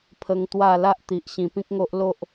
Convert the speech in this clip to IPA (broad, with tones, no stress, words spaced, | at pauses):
pʰə˧ŋt̪wa˥˧ la˦ʔt̪i˨ʔ ɕĩ˨˩pĩ˦k̚ŋo˦ʔ lo˦ʔ